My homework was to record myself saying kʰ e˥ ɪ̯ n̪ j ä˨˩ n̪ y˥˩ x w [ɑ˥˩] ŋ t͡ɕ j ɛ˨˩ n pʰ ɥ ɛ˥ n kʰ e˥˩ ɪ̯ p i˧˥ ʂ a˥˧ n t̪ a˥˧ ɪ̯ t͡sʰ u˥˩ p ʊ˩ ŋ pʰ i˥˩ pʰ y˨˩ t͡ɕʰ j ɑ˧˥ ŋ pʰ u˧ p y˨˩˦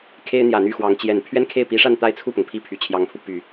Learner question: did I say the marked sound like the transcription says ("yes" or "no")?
no